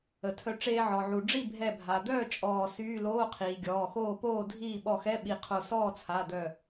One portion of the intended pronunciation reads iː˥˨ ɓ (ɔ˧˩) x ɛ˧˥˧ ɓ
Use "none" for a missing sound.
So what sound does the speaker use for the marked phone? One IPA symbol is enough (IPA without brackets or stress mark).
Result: ɔ˧˩